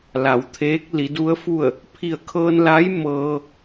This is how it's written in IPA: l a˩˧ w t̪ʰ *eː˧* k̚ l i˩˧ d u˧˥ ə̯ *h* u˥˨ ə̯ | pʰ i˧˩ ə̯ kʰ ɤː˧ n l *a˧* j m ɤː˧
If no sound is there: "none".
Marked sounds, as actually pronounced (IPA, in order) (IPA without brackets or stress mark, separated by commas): eː˧˥, f, a˧˥